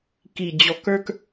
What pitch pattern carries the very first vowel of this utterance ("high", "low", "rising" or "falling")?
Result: low